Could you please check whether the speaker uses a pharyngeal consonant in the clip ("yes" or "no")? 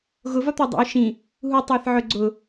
yes